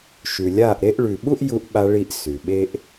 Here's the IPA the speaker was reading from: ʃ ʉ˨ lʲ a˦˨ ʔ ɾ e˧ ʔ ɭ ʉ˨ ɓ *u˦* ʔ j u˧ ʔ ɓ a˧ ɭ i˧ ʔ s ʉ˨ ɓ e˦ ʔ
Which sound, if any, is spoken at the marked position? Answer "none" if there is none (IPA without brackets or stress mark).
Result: u˦